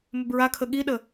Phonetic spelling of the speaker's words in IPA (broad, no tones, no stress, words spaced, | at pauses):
mʏbɹakʰə ɠiɗə